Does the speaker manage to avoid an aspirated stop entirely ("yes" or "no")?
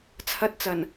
no